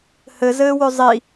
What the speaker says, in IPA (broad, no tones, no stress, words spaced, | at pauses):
hɘzɘːwɵ zˤi